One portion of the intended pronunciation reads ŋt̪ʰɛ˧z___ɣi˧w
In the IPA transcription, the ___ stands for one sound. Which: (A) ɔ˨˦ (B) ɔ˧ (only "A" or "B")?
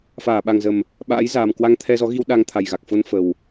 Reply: A